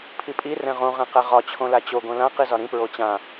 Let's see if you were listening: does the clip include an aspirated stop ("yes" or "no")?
yes